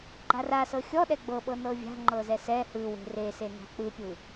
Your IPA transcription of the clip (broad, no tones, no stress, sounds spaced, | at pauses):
ɡ͡ǃ a r a s ɤ xʲ ɔ ɗ ɛ ɡ͡b ɤ ɓ ɤ n ɤ vʲ a̤ ŋ͡ǃ ɤ z ɛ s ɛ h ɯ w e̤ r e s e n a̤ k͡p ɯ pʲ ɯ